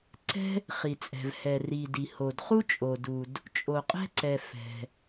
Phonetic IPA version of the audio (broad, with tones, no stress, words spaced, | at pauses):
ǀɛ̤˥ | χi˩t͡sʼɛ̤˩vhɛ˩ri˩ di˩ho˩dχu˥ t͡ʃʼo˩du˩d | t͡ʃʼo˩qʼɛ̤˥ǀɛ˩ fɛ̤˩